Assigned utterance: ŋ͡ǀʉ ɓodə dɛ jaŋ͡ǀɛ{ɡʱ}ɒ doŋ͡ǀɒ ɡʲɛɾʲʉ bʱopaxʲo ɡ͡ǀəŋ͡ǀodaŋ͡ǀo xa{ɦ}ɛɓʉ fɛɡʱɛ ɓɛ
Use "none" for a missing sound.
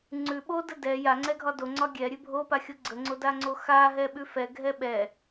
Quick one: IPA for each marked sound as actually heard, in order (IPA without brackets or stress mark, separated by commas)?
ɡʱ, ɦ